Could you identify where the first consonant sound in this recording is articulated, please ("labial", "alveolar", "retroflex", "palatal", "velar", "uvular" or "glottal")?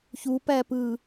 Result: palatal